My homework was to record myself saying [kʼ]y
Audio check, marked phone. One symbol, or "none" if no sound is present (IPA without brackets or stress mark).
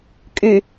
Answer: kʼ